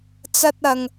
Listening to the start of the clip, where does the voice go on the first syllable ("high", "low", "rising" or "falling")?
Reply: high